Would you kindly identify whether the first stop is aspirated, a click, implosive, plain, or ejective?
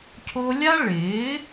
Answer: aspirated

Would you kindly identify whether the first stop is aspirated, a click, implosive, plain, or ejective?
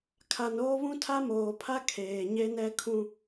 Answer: aspirated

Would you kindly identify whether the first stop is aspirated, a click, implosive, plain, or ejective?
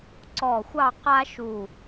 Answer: click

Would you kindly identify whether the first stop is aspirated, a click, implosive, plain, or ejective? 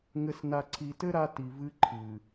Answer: click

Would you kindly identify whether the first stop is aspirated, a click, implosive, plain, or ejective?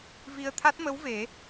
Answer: aspirated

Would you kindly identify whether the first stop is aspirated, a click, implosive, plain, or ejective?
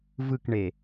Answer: plain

